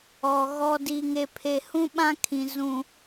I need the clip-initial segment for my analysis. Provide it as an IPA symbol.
ɔ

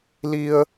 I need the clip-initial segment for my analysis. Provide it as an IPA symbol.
l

